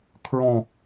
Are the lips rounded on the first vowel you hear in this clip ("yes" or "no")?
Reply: yes